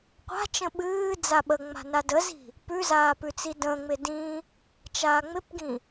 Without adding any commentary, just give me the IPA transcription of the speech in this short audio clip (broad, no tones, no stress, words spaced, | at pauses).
qʷa̤t͡ʃə̃ ɓɨː d͡zaɓəŋ͡ma̤ nadəzi̤ | pʉzaː pʉt͡sidə̃ːŋ͡mɪ dĩ | t͡ʃaːŋ͡mɪpɡĩ